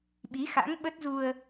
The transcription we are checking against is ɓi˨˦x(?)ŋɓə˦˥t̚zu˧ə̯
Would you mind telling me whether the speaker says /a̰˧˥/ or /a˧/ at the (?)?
a̰˧˥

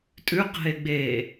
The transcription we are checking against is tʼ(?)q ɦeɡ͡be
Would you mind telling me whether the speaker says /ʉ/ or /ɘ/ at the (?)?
ʉ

